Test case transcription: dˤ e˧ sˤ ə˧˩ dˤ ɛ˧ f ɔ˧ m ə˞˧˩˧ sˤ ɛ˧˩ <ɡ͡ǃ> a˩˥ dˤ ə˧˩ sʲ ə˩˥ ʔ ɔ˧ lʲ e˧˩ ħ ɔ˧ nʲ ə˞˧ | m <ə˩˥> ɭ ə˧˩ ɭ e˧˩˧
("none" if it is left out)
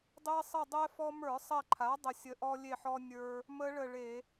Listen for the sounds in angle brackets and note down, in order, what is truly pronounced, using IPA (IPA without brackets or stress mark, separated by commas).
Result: ǃʰ, ə˦˥